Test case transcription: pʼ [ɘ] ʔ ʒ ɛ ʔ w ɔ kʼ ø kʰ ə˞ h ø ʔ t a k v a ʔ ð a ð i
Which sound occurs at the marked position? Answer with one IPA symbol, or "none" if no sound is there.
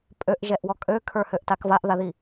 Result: ø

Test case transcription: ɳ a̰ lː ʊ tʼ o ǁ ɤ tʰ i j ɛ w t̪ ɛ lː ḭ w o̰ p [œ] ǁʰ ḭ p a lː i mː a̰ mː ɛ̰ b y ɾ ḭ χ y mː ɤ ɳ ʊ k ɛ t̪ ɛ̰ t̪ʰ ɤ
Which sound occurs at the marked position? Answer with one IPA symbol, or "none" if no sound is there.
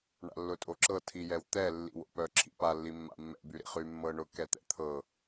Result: œ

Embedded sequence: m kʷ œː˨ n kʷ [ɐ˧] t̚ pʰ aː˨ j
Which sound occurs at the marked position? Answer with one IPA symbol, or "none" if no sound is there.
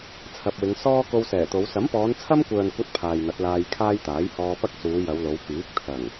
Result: ɐ˥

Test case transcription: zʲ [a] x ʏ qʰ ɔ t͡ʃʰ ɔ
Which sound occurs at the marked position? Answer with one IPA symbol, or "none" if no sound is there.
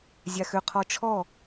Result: a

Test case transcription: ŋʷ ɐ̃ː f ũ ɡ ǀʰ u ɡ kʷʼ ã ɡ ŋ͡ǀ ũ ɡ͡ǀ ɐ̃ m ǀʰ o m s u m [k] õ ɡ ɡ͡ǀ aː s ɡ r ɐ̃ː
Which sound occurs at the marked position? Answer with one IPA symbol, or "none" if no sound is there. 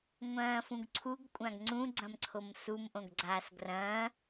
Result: ʔ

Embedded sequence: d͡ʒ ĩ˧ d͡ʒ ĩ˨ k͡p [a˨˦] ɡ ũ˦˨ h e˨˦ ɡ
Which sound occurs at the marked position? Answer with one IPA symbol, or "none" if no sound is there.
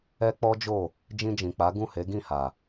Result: a˨˦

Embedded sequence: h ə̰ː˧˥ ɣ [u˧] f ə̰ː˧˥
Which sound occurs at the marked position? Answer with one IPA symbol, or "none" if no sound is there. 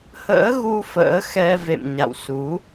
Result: u˧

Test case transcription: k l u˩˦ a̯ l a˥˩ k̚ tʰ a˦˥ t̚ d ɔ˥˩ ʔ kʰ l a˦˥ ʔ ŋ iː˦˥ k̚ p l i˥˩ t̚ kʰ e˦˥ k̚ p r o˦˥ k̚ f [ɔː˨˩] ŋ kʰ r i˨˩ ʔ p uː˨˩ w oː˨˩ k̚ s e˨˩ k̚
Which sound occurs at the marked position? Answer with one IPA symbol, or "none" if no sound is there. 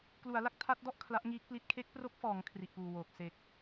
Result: ɔː˩˦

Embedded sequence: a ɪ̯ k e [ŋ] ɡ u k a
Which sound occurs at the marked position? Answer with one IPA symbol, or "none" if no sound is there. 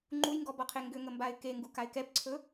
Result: ŋ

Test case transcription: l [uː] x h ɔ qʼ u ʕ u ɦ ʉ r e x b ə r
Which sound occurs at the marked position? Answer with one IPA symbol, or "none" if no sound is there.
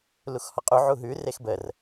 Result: u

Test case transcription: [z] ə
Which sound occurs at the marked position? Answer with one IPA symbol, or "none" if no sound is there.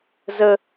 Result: z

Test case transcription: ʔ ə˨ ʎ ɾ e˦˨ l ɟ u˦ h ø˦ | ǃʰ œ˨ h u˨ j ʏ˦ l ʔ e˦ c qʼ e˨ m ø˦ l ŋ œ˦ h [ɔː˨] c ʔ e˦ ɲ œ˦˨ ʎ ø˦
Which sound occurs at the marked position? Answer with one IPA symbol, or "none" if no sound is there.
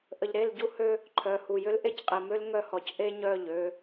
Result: ɔ˨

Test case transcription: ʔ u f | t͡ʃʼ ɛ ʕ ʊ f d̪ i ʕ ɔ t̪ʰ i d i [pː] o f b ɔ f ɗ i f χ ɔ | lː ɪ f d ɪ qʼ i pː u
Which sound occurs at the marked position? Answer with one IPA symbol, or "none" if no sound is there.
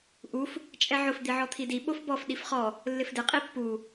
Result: ɓ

